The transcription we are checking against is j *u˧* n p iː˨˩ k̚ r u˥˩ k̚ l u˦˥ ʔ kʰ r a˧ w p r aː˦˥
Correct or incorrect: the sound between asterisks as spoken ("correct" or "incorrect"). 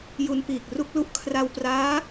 correct